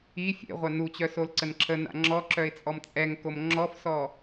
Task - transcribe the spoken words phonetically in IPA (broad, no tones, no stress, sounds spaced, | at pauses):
i fʲ ḛ ʁʷ a n u t͡ɕ œ s o l ǀ ə n ǁʰ ə n a̰ ŋ͡ǁ ɔ ǁ œ ɪ̯ t͡sʼ ɔ m t͡sʼ ɛ ŋ k o m ŋ͡ǁ ɔ f s ɔ